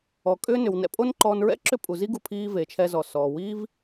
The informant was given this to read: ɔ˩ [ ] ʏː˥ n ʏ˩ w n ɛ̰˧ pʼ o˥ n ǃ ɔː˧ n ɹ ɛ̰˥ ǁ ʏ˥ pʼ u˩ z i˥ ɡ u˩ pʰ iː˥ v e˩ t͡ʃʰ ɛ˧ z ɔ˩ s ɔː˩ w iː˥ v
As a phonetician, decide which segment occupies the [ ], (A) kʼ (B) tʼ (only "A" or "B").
A